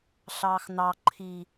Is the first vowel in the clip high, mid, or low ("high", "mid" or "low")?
low